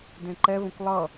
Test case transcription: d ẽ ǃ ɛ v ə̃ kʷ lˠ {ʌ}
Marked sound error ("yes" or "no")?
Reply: no